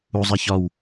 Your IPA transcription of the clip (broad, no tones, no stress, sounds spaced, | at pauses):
u zˤ a ç ɒ w